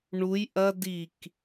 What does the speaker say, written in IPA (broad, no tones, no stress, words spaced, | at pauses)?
ɳuj ʔɐ dik